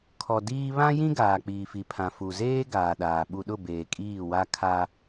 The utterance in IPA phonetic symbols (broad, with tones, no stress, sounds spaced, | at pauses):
kʰ ɔ˨ d iː˦ β ã˦ j ĩ˦ ɡ aː˨ k͡p iː˨ f i˨ pʰ ã˨ f u˨ z eː˦ ɡ aː˨ ɗ aː˨ ɓ u˨ ɗ ʊ˦˨ b eː˨ kʼ iː˦˨ w a˦ kʰ a˦